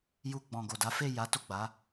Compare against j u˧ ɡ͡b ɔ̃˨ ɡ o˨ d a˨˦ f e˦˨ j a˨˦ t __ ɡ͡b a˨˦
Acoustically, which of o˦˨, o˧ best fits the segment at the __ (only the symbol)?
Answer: o˦˨